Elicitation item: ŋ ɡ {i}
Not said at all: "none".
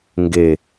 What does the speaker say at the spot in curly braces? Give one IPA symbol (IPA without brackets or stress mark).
e